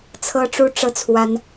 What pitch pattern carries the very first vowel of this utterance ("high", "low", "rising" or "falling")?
high